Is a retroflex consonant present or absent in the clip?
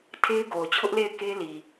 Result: absent